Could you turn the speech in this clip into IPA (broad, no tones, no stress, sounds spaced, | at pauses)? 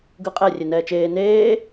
ɡ ɯ qʼ ɛ rʲ e n ɛː t͡ʃ eː n eː